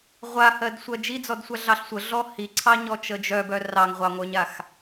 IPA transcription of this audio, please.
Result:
ʁʷ a h ɜ d sʷ ɜ d͡ʒ i d͡z ɔ d sʷ a ɮ ɑ ɬ sʷ ə ɮ ɔ h i ǀʰ ɑ ɲ ɔ t͡ʃ ə d͡ʒ œ b œ r ɑ ŋ ʁʷ ɑ ŋʷ œ ɲ a x

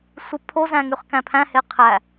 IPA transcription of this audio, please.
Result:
sʷ ɯ pʰ o z æ̃ ŋ y χ k æ̃ pʰ æ̃ h e qʰ æ

